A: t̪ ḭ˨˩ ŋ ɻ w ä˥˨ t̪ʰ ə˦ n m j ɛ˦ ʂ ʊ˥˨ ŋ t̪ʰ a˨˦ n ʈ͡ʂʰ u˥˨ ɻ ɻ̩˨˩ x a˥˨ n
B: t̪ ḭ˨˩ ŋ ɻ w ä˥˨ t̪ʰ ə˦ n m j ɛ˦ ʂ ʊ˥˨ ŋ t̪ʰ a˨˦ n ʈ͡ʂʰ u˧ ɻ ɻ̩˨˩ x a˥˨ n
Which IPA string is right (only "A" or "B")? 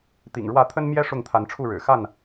A